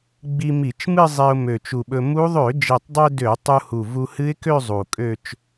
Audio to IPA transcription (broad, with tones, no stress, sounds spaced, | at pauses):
ɡ͡b i˧ m i˧˩˧ t͡ʃ m ɨ˥˧ zˤ e˧ ʊ̯ m ø˨˩ t͡ʃ u˨˩ ɓ ɵ˧ m u˦˥ ðˤ ø˧˩˧ d͡ʒ e˨˩ tˤ dˤ ø˧ d ø˧˩˧ tˤ u˧ h u˨˩ v u˧ h ɨ˦˥ ɪ̯ k ø˥˧ zˤ u˨˩ kʼ ø˥˧ t͡ʃ